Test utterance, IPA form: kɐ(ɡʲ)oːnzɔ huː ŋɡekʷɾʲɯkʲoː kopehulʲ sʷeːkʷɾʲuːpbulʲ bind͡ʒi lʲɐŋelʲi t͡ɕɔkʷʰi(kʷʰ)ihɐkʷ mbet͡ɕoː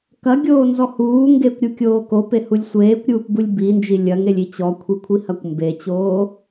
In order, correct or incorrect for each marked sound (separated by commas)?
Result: correct, correct